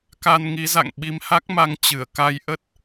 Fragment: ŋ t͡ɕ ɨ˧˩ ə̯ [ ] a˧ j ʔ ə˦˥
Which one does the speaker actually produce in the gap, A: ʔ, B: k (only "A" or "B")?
B